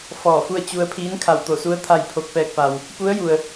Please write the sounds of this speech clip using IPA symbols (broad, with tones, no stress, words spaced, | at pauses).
fɔː˧˩fu˥˨ə̯ t͡ɕu˧ə̯ pʰiː˧˥nkʰa˧˩w t̪o˧˩su˧˥ə̯ t̪ʰa˥˨jpʰo˥˨k̚ pɛː˧k̚pa˩w | pu˧˥ə̯ju˩ə̯